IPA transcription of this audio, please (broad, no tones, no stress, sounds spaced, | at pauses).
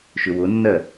ʃ ʏ w ʊ nː ɜ